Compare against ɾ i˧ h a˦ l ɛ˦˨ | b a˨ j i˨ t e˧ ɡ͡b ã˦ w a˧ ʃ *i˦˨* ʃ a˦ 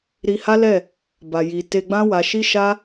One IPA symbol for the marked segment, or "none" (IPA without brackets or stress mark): i˦